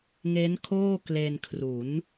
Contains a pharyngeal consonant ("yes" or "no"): no